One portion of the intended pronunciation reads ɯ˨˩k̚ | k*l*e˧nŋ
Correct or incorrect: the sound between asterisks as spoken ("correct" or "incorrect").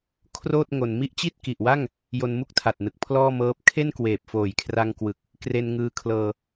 incorrect